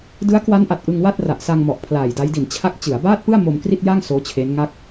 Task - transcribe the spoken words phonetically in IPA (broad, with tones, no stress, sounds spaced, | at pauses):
d ɯ˦˥ a̯ k w a˦˥ n ʔ a˨˩ t̚ ʔ ɯ˧ ŋ w a˥˩ t̚ r a˨˩ ʔ s a˧ ŋ m ɔ˨˩ ʔ pʰ l aː˨˩ j d a˦˥ j d i˨˩ n t͡ɕʰ a˦˥ k̚ t͡ɕ ɯ˩˦ a̯ b aː˥˩ t̚ p ɯ˥˩ a̯ m o˧ m k r i˥˩ t̚ j a˥˩ ŋ s oː˦˥ t͡ɕʰ e˦˥ n ŋ a˥˩ k̚